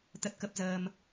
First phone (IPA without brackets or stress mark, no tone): t̪